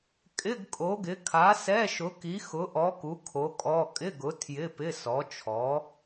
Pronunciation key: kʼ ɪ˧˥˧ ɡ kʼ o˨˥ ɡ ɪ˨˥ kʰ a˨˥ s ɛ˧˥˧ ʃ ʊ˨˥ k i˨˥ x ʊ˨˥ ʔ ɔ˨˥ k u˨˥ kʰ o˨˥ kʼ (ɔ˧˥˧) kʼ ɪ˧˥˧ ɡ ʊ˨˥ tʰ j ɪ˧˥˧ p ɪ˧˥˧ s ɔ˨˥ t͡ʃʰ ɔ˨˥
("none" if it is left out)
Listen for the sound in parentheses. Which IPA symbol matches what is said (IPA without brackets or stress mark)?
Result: ɔ˧˥˧